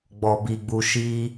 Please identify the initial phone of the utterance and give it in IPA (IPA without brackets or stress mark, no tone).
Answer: ɡ͡b